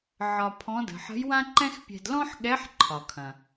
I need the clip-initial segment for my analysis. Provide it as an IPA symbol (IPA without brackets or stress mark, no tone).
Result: ʕ